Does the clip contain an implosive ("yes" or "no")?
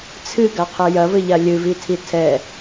no